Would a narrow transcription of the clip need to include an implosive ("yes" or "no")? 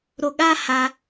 yes